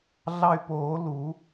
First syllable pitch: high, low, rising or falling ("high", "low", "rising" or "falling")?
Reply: high